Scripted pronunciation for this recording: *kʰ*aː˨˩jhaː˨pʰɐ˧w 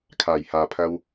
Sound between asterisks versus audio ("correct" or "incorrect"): correct